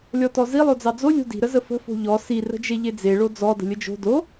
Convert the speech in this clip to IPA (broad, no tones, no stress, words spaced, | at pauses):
lʲɔtɔzi lˠod͡zɑd͡zo lʲo̤di̤ ɾəzəfə̤ fo̤ʎɔ si rə̤d͡ʒeʎed͡ze ɭod͡zɔ də̤lʲəd͡ʒo̤ do